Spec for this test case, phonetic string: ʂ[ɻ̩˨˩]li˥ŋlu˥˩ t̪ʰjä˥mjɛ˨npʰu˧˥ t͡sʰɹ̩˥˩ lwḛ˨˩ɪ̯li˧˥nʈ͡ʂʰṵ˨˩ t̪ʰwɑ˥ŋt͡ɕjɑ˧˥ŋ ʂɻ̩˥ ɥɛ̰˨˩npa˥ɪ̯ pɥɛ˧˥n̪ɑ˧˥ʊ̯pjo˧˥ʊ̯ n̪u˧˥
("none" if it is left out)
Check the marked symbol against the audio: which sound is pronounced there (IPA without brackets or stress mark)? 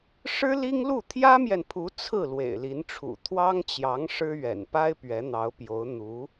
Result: ɻ̩˥